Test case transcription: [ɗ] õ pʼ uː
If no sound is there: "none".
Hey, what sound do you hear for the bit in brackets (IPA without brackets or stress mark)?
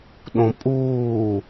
ɗ